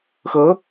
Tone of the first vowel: rising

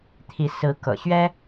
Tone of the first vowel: rising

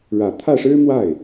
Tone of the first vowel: low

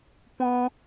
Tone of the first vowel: high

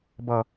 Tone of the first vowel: low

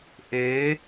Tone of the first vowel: rising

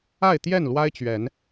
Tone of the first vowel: falling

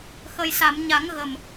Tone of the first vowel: low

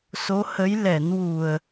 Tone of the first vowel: rising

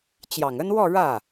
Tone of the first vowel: low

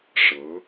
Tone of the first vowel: rising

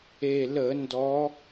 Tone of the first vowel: low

